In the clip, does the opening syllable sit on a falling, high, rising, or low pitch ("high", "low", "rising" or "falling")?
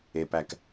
low